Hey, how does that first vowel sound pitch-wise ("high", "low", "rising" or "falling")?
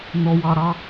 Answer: low